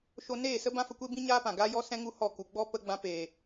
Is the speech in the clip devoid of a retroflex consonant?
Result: yes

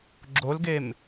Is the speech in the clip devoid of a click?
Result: no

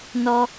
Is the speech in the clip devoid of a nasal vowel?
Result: yes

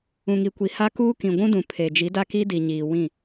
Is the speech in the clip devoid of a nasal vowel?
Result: no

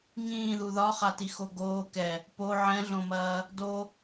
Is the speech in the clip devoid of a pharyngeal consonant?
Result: no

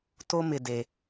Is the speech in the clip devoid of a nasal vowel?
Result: yes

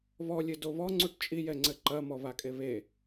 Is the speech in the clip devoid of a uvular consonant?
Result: yes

